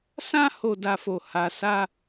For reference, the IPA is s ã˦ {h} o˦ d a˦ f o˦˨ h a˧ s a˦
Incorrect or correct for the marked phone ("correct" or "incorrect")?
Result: correct